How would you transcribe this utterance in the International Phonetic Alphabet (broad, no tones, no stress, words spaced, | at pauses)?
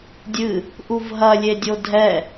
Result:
dʲɨ | ʔuvɦɐ lʲedʲodʱɛ